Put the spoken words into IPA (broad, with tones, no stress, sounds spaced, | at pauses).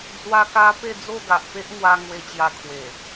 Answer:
d͡z w a˧ k a˧ p e˥˧ d͡z o˥˧ ɡ a˨ ʔ p e˦ ʔ ŋ w a˧ ŋ w e˧ t͡ɕ j a˧ kʰ w e˨˩